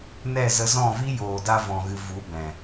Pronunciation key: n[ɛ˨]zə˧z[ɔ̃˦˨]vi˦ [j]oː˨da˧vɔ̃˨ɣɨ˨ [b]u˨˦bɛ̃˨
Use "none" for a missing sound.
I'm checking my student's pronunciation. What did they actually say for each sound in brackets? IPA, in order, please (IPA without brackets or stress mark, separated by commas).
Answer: ɛ˦˨, ɔ̃˦˨, j, v